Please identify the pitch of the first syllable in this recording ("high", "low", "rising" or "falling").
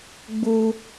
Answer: high